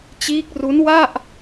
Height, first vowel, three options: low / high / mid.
high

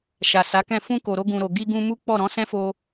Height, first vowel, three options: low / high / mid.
low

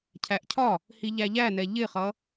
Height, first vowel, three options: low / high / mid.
low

